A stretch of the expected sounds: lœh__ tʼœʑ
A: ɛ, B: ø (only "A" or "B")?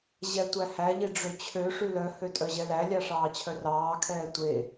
B